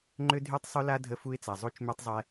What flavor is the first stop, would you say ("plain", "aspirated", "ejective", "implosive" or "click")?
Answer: click